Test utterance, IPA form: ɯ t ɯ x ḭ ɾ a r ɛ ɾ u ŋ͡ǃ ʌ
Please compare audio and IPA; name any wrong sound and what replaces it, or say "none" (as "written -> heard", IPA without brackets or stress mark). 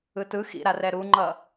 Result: none